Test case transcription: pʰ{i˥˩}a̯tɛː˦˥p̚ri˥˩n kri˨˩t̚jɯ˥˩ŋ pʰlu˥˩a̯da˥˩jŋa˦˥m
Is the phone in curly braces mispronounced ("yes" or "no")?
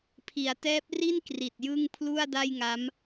yes